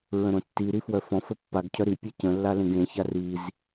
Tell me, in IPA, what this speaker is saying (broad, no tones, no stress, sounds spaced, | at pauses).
ɹ ə̃ ɾ õ tː i ɾ i f w œ f ɔ̃ f ə pː a ɡ cʰ œ ɾ i pʲ ɛ c ə̃ lː a l ẽ ɡ ẽ ç a r i z